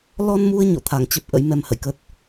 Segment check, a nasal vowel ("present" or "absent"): absent